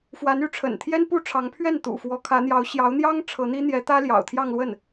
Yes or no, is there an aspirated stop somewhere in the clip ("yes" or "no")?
yes